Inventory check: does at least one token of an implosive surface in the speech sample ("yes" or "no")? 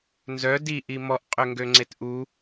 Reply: no